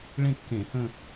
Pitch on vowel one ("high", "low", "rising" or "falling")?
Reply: falling